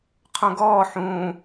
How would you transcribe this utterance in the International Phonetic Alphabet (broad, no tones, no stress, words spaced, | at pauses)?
qʰõɡɔː ħũː